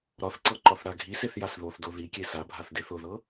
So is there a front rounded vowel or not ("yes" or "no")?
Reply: no